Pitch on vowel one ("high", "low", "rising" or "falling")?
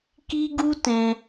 high